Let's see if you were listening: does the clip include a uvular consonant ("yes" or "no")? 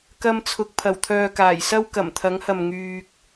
no